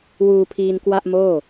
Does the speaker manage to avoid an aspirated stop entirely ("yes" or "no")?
no